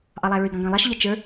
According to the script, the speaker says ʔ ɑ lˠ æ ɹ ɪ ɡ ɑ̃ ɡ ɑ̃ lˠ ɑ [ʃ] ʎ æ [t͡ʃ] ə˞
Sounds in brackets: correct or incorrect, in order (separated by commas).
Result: correct, correct